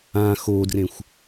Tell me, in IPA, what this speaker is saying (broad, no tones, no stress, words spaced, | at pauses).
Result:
ã xodrẽxʷ